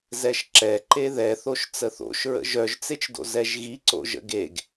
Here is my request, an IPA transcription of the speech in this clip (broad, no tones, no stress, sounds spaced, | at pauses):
z ɛ ʃ ǁ ɛ ǃ e ð ɛ θ o ʃ t͡s ə θ o̰ ʃ ɹ ə̰ ʒ œ ʒ t͡s e t͡ʃ d o̰ z ɛ ʒ ɣ i ǀ o̰ ʒ ə̰ ɡ e ɡ